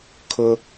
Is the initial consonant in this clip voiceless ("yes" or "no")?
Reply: yes